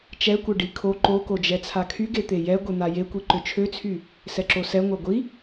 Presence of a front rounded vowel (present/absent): present